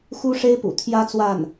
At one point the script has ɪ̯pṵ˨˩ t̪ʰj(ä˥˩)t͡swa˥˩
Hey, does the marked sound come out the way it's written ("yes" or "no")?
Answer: no